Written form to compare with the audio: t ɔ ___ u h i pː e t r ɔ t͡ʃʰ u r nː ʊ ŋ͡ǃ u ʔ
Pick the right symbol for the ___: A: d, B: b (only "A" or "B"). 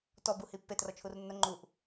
B